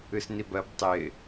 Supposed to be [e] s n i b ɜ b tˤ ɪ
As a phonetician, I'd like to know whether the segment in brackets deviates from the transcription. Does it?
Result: yes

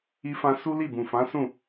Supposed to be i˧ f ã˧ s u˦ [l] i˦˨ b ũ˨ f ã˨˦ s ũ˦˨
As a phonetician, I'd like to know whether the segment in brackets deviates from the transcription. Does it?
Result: no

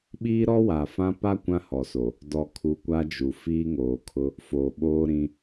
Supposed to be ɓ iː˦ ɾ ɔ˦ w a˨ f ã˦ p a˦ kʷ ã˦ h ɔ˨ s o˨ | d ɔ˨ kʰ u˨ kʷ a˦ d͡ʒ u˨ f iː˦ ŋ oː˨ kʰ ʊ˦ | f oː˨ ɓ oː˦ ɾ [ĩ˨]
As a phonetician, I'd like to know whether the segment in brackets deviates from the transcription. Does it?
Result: yes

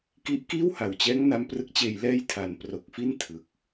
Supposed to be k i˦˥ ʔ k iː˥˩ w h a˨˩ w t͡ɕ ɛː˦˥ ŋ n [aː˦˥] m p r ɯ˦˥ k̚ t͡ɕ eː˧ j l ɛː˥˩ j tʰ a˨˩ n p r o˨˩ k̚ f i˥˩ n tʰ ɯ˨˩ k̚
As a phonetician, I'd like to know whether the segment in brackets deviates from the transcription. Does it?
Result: yes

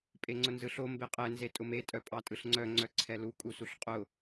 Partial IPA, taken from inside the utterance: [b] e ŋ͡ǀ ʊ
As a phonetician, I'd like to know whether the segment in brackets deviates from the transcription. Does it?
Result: yes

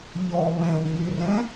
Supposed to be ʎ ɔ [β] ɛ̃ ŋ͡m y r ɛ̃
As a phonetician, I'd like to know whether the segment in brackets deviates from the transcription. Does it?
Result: no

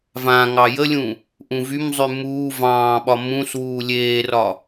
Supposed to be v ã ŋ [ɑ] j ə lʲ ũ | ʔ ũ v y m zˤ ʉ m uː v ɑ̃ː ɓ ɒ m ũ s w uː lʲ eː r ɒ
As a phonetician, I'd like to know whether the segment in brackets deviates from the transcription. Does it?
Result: no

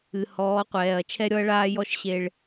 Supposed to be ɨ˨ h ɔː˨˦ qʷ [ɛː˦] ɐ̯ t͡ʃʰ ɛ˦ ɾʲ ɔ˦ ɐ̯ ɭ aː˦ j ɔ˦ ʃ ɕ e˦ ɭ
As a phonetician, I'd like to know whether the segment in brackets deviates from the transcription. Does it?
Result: yes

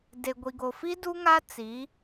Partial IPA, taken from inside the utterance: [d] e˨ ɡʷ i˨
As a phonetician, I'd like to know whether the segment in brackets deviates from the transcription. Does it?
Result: no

